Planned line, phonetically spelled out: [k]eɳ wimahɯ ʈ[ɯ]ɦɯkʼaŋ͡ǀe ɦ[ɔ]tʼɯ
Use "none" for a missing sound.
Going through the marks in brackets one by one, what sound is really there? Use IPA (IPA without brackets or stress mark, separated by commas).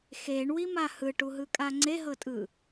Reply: x, u, ɤ